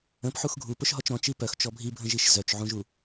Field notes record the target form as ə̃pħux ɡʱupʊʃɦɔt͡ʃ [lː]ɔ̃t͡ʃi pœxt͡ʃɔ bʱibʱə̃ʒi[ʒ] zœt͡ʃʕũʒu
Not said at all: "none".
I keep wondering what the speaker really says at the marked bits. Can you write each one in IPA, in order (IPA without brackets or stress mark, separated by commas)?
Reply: ɾ, ʃ